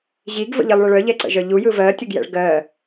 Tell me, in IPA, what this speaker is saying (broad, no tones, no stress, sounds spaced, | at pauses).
ʑ i ɡ v ə̰ ʎ i lˠ ɭ ə ɭ œ ʎ ɛ ǀ ə̰ ʒ œ ʎ u j ɯ v ɜ tʲ ə ɡ j ɛ̰ ɭ ɡ ɜ